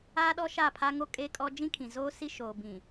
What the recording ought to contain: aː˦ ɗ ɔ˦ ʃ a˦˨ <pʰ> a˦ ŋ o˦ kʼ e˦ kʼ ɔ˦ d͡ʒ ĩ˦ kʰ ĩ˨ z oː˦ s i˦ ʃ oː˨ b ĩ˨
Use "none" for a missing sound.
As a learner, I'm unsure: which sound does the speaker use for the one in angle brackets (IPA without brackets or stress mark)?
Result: pʰ